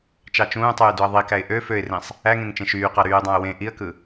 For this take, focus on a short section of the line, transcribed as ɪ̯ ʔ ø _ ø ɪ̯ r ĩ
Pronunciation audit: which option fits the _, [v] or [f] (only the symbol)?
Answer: f